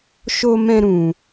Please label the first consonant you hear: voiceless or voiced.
voiceless